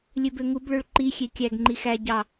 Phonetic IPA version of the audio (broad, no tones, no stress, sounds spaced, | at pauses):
lʲ ø b ø ŋ u b ɭ ø ɭ ǃ i xʲ e kʲ æ ɡ ŋ͡ǃ i x æ ɟ ɑ